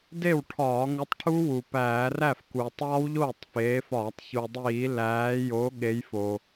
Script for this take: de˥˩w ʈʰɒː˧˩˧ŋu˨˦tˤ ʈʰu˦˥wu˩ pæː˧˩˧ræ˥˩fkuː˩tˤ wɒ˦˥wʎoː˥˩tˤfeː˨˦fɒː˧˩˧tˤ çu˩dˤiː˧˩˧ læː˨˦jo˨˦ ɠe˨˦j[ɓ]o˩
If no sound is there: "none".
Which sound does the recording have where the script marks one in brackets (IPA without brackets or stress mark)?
f